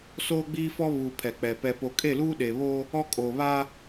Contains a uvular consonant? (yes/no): no